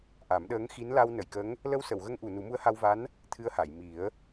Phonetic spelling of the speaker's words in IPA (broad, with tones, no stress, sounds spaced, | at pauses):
ʔ a˨˩˦ m ɗ əː˧˥ ŋ x i˧˥ n l a˧ w n ə˨˩˨ j k ə˧˥ ŋ | l ə˧ w s ə˨˩˨ w ɣ ə˧ ŋ ʔ u˨˩˨ n u˨˩˦ m u˧˥ ə̯ h a˧ w v a˧˥ n | t̪ʰ ɨ˧ ə̯ h a˨˩˨ j m i˨˩˦ ə̯